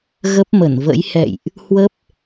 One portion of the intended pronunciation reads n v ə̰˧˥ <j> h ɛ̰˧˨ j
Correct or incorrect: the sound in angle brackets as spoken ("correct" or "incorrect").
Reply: correct